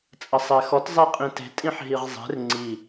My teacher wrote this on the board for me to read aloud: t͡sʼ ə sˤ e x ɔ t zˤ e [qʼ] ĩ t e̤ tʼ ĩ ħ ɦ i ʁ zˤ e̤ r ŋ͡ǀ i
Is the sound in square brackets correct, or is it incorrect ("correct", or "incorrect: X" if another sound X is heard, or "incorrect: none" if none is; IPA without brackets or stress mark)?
correct